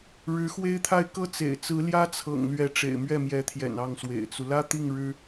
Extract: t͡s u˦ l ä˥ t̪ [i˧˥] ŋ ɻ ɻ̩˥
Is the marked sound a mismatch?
yes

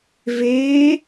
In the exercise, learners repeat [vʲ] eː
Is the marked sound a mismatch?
yes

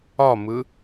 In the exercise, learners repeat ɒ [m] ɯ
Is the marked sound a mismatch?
no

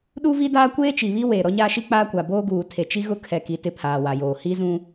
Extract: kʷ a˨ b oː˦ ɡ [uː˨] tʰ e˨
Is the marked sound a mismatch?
no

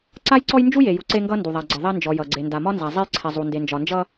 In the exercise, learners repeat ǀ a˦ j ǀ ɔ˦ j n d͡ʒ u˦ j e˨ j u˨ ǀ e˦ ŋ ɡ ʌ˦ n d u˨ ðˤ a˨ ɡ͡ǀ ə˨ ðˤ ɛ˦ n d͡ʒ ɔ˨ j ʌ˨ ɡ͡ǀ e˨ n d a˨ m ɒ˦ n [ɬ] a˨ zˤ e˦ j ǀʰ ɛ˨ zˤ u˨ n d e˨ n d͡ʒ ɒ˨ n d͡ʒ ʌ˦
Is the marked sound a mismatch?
yes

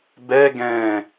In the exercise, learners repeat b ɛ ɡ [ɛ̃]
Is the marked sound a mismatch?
no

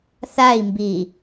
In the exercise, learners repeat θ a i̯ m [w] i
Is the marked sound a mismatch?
yes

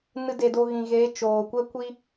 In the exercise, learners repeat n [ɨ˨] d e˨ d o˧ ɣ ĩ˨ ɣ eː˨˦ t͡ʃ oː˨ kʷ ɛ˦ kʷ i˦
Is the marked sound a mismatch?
yes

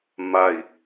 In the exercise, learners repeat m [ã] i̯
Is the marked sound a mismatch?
yes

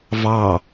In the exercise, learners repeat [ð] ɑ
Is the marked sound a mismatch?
yes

